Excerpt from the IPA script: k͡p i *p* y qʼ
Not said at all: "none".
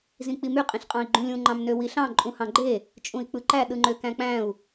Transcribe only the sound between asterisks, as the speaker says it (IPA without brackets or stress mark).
m